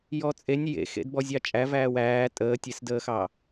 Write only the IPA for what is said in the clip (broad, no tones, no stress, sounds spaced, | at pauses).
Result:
j ɔ t͡sʼ e nʲ j ḛ x ḛ d b ɔ zʲ ɑ t͡ʃʼ æ v æː w æː tʼ əː tʲ e s d əː x ɑ